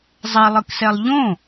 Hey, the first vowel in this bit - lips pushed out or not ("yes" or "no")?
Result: no